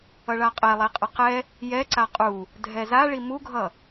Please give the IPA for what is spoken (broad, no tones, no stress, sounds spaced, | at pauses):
ʌ ɭ a qʼ ɛ lˠ e qʼ ʌ q ɛ | j ɛ ǀ a qʼ u | dʱ ɛ z a ɭ i m u ɡʱ ʌ